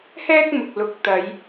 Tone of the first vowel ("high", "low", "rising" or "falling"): high